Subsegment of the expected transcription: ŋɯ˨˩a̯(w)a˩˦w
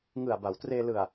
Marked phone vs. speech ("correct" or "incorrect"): incorrect